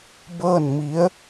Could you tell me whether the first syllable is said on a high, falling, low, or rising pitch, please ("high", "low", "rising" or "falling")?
falling